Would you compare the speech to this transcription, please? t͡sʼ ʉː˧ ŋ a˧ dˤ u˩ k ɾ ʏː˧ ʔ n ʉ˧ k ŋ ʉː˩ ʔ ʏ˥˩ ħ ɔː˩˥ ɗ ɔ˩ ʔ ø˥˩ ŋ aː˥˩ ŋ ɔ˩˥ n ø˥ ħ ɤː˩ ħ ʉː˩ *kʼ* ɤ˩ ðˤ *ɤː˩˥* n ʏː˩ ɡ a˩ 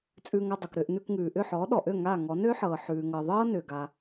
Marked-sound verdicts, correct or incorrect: incorrect, incorrect

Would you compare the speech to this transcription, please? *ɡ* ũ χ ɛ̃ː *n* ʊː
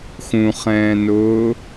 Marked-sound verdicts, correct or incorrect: incorrect, correct

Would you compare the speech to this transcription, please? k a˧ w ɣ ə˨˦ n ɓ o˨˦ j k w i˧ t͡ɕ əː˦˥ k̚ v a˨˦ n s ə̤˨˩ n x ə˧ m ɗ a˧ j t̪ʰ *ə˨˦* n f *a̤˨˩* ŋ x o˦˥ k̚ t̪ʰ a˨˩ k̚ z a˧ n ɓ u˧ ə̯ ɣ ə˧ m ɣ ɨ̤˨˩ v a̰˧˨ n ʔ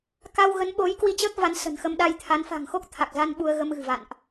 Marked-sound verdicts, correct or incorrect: incorrect, correct

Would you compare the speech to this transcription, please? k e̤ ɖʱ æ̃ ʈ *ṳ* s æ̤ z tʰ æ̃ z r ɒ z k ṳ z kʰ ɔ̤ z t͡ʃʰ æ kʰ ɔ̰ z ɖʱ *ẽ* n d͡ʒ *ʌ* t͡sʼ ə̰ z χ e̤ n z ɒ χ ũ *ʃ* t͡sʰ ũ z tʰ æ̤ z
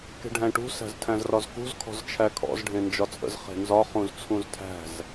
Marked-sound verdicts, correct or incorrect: correct, correct, incorrect, incorrect

